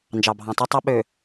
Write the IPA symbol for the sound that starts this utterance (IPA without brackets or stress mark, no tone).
n